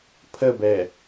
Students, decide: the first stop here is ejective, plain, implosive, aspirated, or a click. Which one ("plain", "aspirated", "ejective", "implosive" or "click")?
aspirated